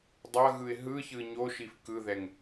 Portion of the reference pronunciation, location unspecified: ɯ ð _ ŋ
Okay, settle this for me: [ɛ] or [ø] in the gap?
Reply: ɛ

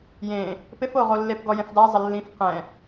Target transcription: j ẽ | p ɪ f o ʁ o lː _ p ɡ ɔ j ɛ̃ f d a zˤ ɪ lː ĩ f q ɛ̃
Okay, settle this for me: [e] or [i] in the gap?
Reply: e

